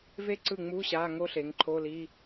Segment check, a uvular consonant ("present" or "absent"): absent